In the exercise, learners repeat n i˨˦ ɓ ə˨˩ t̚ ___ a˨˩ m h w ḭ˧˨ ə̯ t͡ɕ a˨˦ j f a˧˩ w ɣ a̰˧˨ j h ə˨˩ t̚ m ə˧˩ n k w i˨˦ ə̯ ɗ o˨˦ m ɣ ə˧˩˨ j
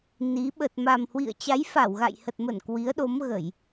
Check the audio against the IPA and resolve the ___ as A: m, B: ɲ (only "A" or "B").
A